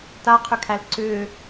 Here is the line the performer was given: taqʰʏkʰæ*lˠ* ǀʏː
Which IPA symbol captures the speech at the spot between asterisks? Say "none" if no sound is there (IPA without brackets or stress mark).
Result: l